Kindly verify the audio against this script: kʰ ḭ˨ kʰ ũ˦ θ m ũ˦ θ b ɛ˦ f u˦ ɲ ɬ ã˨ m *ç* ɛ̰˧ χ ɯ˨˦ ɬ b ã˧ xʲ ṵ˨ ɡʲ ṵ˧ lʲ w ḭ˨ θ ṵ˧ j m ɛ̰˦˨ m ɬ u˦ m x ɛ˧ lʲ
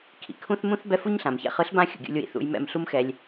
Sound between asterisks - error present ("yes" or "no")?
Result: no